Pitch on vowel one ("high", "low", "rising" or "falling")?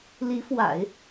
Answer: rising